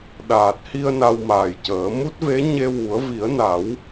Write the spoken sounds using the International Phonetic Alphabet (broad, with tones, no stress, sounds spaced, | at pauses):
ɗ aː˨˩ t̚ h i˧ ə̯ n a˧ w m aː˨˩ j c əː˨˩˦ m u˦˥ t̚ v e˧˥ ɲ e˧ w u˨˩˦ ə̯ v i˨˩˦ ə̯ n a˨˩˦ w